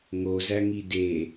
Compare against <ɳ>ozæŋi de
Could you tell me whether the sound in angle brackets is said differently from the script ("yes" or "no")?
yes